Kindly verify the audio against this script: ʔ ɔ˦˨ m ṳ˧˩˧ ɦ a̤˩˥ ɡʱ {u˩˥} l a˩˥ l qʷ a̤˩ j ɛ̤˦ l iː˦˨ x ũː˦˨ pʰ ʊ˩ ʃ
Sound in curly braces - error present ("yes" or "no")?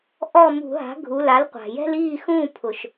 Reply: yes